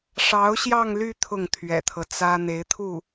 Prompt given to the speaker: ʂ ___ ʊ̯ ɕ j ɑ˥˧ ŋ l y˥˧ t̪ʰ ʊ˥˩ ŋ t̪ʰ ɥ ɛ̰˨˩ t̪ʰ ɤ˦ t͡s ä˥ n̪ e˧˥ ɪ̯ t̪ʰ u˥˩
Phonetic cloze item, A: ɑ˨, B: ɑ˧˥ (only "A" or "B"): B